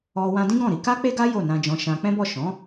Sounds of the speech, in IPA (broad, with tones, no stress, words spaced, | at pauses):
ɔ˧ wã˧dĩ˦ɡɔ̃˦˨ɾi˨˦ ka˦k͡pe˦ɡa˦ jo˦˨nã˧d͡ʒɔ̃˧ʃã˧ k͡pɛ̃˦bɔ˦˨ ʃɔ̃˨˦